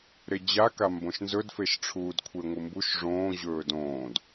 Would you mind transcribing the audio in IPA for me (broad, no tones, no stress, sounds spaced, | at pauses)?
ɾ e d͡ʑ a k a m b õ ʃ n z ɵ d f e ʃ ʈ͡ʂʰ uː d kʷʰ e ŋʷ ɨ m b u ʃ ʐ õː ʑ ɵː d õː d